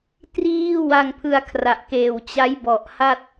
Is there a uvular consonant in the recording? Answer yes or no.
no